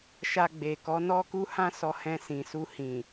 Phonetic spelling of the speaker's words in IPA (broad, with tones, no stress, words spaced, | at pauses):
ʃa˧ɡ͡be˨kɔ˨˦ nɔ˦ku˦ hã˦sɔ˧hɛ̃˧ sĩ˨su˧hĩ˨